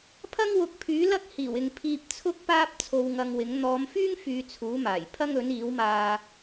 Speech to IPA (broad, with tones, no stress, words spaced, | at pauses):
pʰɐ˥ŋ wʊ˨˥k̚pʰyː˨˥lɐ˥k̚ hiː˨˩wɪ˨ŋpʰiː˧p̚ t͡sʰʊ˥k̚paː˥p̚ t͡sʰo˧wŋɐ˧ŋwɪ˨˥ŋ n̪ɔː˨˧mfyː˥ŋfyː˨ t͡sʰuː˨˥maː˨˩j pʰɐ˥ŋɵ˨˥niː˨˥wmaː˧